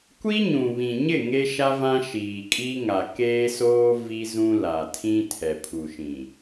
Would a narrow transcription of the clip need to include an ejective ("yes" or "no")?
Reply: yes